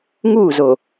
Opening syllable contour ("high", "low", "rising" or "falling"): falling